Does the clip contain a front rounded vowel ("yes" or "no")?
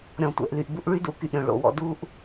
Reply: yes